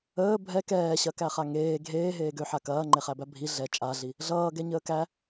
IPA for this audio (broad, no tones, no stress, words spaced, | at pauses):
əː bʱɛ kɛːɕɐkæχa ŋeː ɡʱeː ɦeːɡøħa kɐːŋ͡ǃeχæbæ bʱi ɮɛ t͡ʃʼaɮi | ɮʌːɡɛ ɲəːkæ